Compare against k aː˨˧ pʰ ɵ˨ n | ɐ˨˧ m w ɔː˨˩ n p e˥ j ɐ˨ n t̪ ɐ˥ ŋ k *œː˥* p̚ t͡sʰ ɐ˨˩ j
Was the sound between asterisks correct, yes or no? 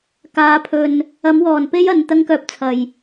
no